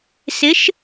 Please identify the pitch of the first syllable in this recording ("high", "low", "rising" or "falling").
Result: rising